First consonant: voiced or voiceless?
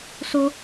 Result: voiceless